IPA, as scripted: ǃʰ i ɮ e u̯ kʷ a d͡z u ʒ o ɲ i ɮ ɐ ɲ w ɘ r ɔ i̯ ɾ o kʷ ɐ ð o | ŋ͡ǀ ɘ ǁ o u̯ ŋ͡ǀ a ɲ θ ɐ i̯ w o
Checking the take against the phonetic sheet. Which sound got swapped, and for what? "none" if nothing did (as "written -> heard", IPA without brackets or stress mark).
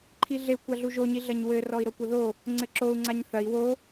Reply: d͡z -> ɮ